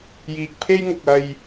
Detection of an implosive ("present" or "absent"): absent